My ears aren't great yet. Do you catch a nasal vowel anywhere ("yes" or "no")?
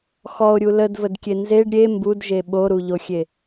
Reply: no